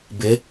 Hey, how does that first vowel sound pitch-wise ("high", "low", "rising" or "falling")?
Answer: rising